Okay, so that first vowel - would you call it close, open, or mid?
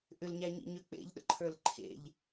close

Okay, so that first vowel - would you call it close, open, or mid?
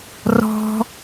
mid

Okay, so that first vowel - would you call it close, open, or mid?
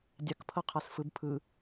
open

